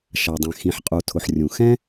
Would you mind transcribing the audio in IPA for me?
ʃa˩dˤɛ̃˩ xĩ˩ħqʼu˩tʰʊ˩ħ rʲũ˩ xɛ̃˥

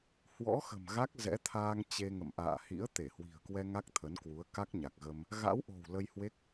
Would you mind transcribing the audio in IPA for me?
hwɔ̰˧˥xə̤˨˩m ɣa˦˥k̚ zɛ̰˧˥t̪ʰaː˧ŋ t͡ɕe˧ŋə̰˧˨m ʔa̰ː˧˨hḭ˧˥ə̯ t̪e˧˩hwi̤˨˩ə̯kwɛ˧ ŋa˦˥k̚t̪ʰə˨˦nkwu˨˦ə̯ ka˦˥k̚ɲa˨˩k̚ɣə˧m | ɣa̰˧˥wʔo̤˨˩w lə˧jhwe˦˥k̚

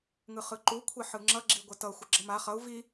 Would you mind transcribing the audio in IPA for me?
ŋɯχɯǃu kʷʰeħɯŋ͡ǁʌ ɡ͡ǁiɡʷətʌ xʷəɡ͡ǁʌma χʌu̯ vi

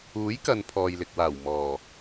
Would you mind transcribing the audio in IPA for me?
uː˨˥jkɐ˨n pʰɔː˨jlɪ˨k̚waː˨˩w mɔː˨˩

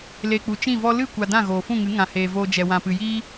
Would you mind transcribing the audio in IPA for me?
le˨k͡pu˨ t͡ʃĩ˦˨vɔ˦ lɨ˦˨kʷa˨ dã˦˨ɣoː˨fũ˦˨ŋɨ˨˦ ŋã˨heː˨voː˧ d͡ʒɛ˨wã˨pɨ˨jiː˦

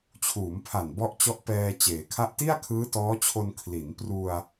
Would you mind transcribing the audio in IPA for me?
t͡ɕʰuː˩˦mpʰa˨˩n bɔ˦˥ʔt͡ɕɔ˦˥ʔpɛː˧ t͡ɕeː˩˦kʰa˥˩ʔ ti˥˩a̯kʰɯː˦˥tɔː˦˥t͡ɕʰo˧n kʰli˩˦n pru˧a̯

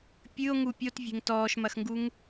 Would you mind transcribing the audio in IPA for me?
pʲɨo̯ ŋupʲot vʲe̤ŋtɔːʃmɐxŋɡuŋ

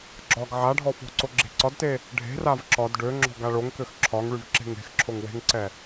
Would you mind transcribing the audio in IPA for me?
ɡ͡ǁɒɡ ʕa ɖʱɔfɔ̤ǀo ɡ͡ǁe̤ǀɒdte | ɖʱe̤rav ǁɒd ɖø ŋ͡ǁɔ̤ɡaɭoŋkøx ǁʰɒŋɭyv ǁe̤ŋe̤xǁʰoŋ we̤ŋǀɛ

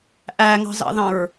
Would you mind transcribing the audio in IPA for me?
ʔæŋɑ̤zɑ̰ðɑ̃ɹ

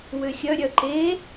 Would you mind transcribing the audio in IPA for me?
wøxʲœɾʲœ ǃe

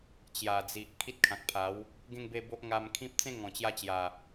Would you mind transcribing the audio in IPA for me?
t͡ɕja˨˩d͡zi˨ʔ kʰi˦t̚kʰã˨k̚pʰa˨˦w | ɡẽ˥˧ŋ be˥˧bo˦ʔ ŋa˧mkʰĩ˦p̚ t͡sẽ˦ŋɔ̃˨˩t͡ɕja˧t͡ɕja˨˩

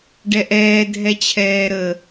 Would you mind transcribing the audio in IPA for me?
ɖɛʔɛː dʱɛt͡ɕʰɛːɾə

